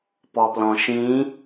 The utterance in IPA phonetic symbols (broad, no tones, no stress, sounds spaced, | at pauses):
p ɔ p l ɔ̃ ʃ ĩ